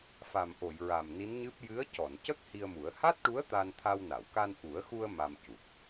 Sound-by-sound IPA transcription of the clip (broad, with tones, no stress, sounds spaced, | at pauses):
f a˨˩ m ʔ o˨˩˨ j ɹ a˨˩ m n i˧˥ n ɲ ɨ˦˥ p̚ j ɨ˧˥ ə̯ c ɔ˨˩˨ n c ə˦˥ k̚ h i˧ ə̯ m u˨˩˦ ə̯ h a˦˥ t̚ ʈ u˧˥ ə̯ t̪ a˧ n t̪ʰ a˧ w n a˨˩˨ w k a˧ n ʔ u˨˩˦ ə̯ x u˧ ə̯ m a˧ m c u˨˩ p̚